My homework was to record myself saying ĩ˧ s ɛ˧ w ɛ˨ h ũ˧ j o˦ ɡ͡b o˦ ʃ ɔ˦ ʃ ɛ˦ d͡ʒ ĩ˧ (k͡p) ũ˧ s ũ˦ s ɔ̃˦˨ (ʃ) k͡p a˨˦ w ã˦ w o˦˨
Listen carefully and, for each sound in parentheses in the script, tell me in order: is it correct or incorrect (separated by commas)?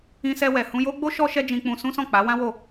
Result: correct, incorrect